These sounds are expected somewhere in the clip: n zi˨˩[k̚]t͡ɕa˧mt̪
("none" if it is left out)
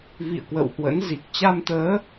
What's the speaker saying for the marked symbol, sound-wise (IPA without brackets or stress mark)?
k̚